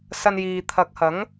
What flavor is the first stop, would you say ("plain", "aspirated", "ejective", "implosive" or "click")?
aspirated